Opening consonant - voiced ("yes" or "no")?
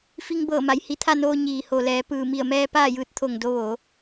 no